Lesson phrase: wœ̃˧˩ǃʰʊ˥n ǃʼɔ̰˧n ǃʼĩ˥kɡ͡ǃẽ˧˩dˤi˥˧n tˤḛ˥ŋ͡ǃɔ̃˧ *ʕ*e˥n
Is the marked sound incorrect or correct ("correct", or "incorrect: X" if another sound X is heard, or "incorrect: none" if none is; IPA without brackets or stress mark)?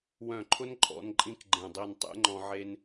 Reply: correct